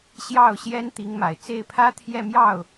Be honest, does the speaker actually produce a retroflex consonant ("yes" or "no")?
no